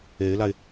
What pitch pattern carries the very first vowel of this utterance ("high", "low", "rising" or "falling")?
rising